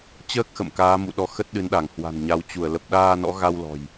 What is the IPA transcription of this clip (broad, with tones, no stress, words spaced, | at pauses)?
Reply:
t͡ɕəː˦˥k̚xə̰˧˨m kaː˨˦mṵ˧˨ɗɔ˨˦ xə˦˥t̚ɗɨ˨˦nɗa˧˩ŋ hwa̤˨˩nɲa˨˦wt͡ɕu˧˩ə̯ lə˨˩p̚ɗaː˧nɔ̰˧˥ɣa˧w lɔ̤˨˩j